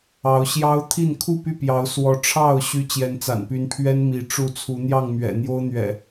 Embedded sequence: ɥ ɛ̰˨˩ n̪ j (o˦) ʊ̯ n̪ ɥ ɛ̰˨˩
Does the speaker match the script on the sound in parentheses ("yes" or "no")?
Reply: yes